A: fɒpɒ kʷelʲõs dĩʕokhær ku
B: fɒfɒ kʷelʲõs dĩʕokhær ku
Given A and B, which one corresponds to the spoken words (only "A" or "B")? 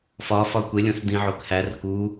B